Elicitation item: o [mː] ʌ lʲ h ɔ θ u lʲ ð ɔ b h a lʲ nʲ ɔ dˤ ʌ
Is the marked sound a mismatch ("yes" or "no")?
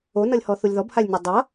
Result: yes